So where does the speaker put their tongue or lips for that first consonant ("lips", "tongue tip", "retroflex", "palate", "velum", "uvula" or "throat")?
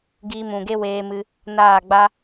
velum